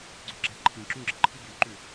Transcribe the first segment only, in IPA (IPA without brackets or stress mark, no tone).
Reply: ɡ͡ǀ